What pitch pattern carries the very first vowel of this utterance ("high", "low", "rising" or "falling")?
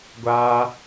high